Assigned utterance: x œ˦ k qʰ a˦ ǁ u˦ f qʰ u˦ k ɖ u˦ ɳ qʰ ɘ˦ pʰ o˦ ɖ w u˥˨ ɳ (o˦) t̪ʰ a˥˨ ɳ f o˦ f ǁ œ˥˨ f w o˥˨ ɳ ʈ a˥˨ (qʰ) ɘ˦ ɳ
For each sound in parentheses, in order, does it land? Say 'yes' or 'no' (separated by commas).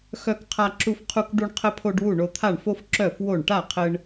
yes, yes